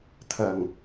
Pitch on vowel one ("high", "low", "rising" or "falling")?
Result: low